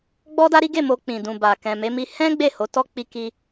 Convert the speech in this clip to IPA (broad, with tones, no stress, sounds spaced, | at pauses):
ɡ͡b ɔ˦ d a˦ ɾ i˦ ɡ e˦˨ m o˧ k͡p ĩ˨ d ũ˨ b a˨ k ɛ̃˨ m e˨˦ m i˧ h ɛ̃˦ ɡ͡b e˦˨ h o˨˦ t ɔ˦ k͡p i˧ k i˧